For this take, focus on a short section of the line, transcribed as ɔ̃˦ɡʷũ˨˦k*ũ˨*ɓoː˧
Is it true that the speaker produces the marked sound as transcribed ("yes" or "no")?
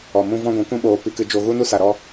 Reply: no